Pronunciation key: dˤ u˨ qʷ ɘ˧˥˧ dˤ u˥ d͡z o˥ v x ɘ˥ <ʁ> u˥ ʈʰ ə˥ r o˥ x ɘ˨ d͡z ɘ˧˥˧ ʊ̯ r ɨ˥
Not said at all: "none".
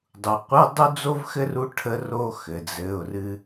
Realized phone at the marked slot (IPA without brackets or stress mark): r